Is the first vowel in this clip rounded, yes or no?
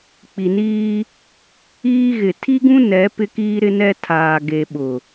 no